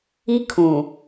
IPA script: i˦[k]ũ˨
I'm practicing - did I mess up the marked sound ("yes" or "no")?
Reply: yes